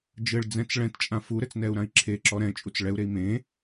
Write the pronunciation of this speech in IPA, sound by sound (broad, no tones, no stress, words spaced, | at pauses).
d͡ʒɘɭd͡zɛ̃t͡s ɭɛ̃tt͡ʃʼã fuɾɘt͡snɛu̯ɾãi̯ ǁʰeǁɔ ɾɛ̃t͡ʃʼut͡s ɭɛu̯ɾei̯ mẽ